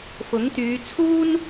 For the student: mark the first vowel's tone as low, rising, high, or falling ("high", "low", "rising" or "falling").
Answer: rising